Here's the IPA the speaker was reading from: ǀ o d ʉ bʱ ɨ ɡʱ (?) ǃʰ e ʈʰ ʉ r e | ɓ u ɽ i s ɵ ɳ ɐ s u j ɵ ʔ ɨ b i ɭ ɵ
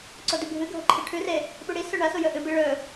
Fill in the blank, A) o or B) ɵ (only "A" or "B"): A